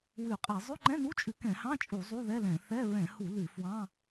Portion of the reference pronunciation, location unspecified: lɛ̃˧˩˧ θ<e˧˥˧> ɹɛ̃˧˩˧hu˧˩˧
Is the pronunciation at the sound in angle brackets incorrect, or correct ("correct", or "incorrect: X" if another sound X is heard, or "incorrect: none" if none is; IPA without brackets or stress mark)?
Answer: incorrect: ɛ˧˥˧